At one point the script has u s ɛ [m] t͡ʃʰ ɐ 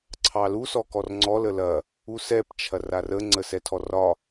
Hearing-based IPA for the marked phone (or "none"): p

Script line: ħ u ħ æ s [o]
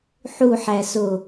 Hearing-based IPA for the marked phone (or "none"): o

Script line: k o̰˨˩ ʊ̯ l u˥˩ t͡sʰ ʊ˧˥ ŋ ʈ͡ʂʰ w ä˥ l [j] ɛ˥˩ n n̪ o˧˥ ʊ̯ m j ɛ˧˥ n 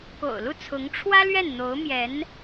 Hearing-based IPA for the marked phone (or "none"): ɥ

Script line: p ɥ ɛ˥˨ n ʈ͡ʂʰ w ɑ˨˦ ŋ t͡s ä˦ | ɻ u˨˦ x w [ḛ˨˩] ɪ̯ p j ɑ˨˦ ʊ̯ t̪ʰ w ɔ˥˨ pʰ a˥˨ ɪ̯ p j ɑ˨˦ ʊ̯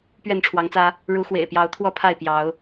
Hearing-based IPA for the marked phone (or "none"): ḛ˨˩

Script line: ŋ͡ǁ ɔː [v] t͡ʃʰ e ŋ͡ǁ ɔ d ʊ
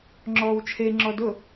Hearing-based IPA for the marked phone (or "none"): w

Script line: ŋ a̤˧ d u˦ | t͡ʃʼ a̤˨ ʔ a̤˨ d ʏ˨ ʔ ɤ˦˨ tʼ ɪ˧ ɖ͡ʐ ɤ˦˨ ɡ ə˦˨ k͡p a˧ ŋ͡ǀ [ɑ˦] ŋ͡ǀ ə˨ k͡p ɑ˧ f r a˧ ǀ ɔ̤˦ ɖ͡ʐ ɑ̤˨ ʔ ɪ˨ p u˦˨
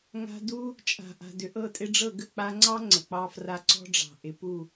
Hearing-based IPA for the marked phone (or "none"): ɑ˦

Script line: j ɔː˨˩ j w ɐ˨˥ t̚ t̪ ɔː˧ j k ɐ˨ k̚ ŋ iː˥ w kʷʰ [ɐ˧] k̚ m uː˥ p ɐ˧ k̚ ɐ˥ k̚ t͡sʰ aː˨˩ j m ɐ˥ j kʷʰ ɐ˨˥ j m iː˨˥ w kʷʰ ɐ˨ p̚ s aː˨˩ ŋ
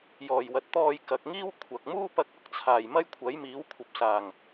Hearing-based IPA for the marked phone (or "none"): ɐ˨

